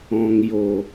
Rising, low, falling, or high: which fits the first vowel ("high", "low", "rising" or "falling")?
low